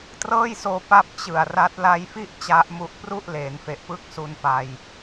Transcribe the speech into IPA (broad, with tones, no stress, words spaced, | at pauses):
trɤː˥˩jsoː˧ pa˥˩p̚t͡ɕɯ˨˩a̯ ra˦˥t̚ la˧jfi˥˩ʔ t͡ɕa˦˥ʔmu˦˥ʔ pru˥˩ʔ leː˩˦nfe˨˩ʔpɯ˥˩k̚su˧n pa˧j